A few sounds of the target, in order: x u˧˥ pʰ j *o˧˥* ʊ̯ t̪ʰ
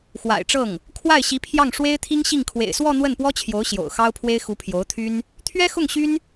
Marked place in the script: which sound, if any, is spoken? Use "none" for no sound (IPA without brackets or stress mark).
o˧˥